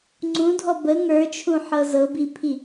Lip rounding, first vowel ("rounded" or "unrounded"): rounded